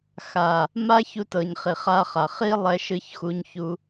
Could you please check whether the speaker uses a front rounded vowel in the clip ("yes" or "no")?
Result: no